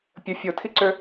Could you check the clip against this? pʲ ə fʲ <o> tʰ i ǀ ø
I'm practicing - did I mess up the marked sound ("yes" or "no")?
no